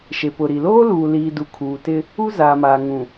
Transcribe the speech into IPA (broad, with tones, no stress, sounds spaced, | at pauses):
ʃ e˨ p ʊ˨ ɾ i˨ l oː˦ l uː˨ l iː˨ d u˨ kʰ uː˨ t ɪ˦ | u˦ z aː˨ m aː˨ ŋ ũ˨